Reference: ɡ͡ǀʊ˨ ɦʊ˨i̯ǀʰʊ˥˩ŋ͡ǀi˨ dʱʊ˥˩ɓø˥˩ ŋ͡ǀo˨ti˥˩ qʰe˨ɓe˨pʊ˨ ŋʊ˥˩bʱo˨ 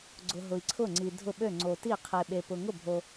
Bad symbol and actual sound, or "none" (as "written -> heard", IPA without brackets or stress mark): none